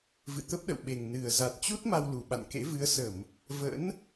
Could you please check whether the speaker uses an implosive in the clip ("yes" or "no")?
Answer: yes